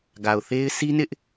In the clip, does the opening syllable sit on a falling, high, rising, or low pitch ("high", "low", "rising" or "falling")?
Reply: low